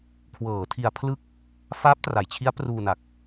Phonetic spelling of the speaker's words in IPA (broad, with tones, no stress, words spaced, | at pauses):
kʰwɤː˩˦ tʰi˧a̯pʰlɯ˥˩k̚ | faː˦˥p̚tra˩˦jt͡ɕʰi˦˥a̯ pruː˧na˨˩k̚